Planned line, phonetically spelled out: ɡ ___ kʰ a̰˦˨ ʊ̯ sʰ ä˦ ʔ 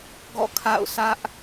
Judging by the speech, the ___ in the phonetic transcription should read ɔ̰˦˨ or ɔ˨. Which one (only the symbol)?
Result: ɔ̰˦˨